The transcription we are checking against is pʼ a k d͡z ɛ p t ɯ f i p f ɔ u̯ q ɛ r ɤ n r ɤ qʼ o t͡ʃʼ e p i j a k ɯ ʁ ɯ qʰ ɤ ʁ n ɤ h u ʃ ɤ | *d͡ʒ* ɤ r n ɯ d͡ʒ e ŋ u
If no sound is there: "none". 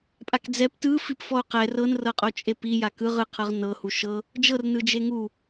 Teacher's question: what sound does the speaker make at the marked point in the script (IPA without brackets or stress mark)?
d͡ʒ